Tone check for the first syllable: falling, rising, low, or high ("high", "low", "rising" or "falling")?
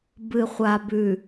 low